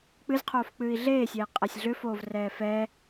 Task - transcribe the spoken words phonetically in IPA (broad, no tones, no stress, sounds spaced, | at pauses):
k͡p ɨ z qʰ oː f k͡p ɨː i̯ ɮ eː sʲ ɛ i̯ qʼ ɛ sʲ ɮ ʏ f oː v r ɛː f ɛ